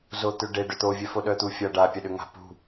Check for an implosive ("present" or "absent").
present